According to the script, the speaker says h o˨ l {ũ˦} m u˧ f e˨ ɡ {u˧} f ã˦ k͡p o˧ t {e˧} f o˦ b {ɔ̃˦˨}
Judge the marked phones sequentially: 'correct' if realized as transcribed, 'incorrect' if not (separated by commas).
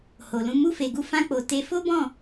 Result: incorrect, correct, correct, correct